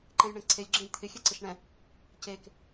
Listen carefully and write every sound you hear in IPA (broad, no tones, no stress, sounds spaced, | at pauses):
ǃ ɛ̃ j ɳ ẽ ǀʰ e lʲ ɡ͡ǁ ẽ j t̪ʰ ɪ xʲ ɛ ǀ ɪ ʃ ɳ ɛ̃ | c e k